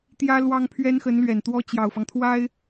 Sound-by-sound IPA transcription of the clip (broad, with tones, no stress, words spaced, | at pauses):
t̪jä˥lwɑ˥ŋ pʰɥɛ˥nxə˧˥nlɥɛ˨˩n t̪wɔ˥ t͡ɕjɑ˨˩ʊ̯fɑ˦ŋt̪ʰwa˥ɪ̯